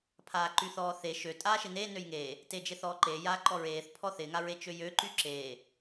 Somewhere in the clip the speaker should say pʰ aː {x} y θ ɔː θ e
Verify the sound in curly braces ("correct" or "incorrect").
incorrect